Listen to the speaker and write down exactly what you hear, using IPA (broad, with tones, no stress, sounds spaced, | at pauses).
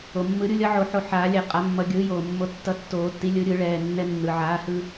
o˩ mː ɯ˨˩˦ ɾʲ u˩˥ lʲ ʌ˩˥ ʕ o˧ ħ o˧ ħ aː˨˩˦ lʲ ɛ˨˩˦ qʼ a˨˩˦ mː ʌ˨˩˦ ɡʲ ɯː˩˥ j oː˩ mː o˧ tː ʌ˧ tː oː˨˩˦ tː i˩˥ lʲ ɯ˩˥ ɾʲ ɯ˨˩˦ ɭ ɛː˩˧˩ nː ɛ˧ nː ɯ˩ ʕ aː˩˥ h ɯ˧